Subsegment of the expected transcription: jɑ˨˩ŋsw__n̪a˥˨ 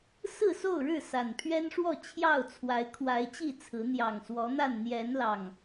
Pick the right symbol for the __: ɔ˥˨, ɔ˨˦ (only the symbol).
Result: ɔ˨˦